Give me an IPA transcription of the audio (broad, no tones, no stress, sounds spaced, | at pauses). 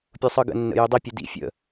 pʲ u sˤ ɯ ɡ ə̰ nː ə̰ j y dˤ i pʲ u d ḭ fʲ ə̰